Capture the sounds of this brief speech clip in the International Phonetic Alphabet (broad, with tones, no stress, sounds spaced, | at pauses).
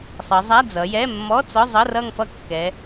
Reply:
sˤ ʌ˩˧ zˤ a˧˥˧ d͡z ʌ˩˧ j ɛ˧˥˧ mː ɔ˧˥˧ t͡s ɔ˧˥˧ zˤ ʌ˧˥˧ r ʌ˥˧ ŋ f ʌ˥˩ kː ɛ˩˧